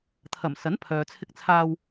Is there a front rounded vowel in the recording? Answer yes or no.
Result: yes